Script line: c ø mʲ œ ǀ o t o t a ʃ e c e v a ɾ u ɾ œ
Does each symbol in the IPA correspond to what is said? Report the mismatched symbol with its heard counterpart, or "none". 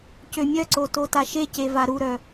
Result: none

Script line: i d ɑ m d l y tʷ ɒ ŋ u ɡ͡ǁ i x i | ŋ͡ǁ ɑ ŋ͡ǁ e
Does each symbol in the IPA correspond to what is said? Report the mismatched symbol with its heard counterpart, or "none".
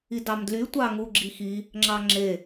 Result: ɒ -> ɑ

